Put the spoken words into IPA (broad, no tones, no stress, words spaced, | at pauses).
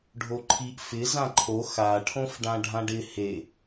ɖʱoǃʰiʔ fɪ zãǃʰo xa ʈʰõfɖãɖʱãɖɪ he